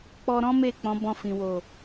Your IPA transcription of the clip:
k͡p ɔ˧ ɾ ɔ̃˦ m e˦˨ k͡p ɔ̃˨˦ b ɔ̃˧ f ĩ˨ w o˨

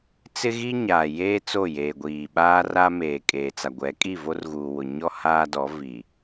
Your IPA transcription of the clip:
t͡s ɪ˦ ɣ i˦ ɲ aː˨ j eː˦ t͡s o˦˨ j eː˨ ɡʷ iː˨ ɓ aː˦ r a˦ m eː˨ kʼ eː˨ t͡s a˨ ɡʷ ɛ˨˦ kʼ i˦˨ v o˦ r ɣ uː˨ w ʊ˨ ɲ ɔ˦ h aː˦ d ɔ˨˦ v i˨

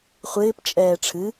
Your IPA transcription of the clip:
χʷ ɪː p t͡ʃʼ ɛː ʈ͡ʂʰ ɨ

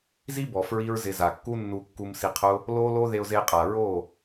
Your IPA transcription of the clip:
z i˦ b ɔ˨ f ɹ i˦ ɹ z ɪ˧ z a˨ kː u˦ nː u˧ kː u˧ m s i˧ qʰ ʊ˦ | l o˦ l o˦ ð e˧ ʊ̯ z e˧ qʼ a˨ ɹ o˦˨

